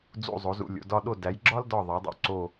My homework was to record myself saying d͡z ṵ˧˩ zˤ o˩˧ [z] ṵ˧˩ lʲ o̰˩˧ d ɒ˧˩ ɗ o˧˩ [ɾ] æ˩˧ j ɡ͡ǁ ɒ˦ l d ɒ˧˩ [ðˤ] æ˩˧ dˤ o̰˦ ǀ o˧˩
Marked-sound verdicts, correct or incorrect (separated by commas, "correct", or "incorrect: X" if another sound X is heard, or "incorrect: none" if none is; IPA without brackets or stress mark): correct, incorrect: d, correct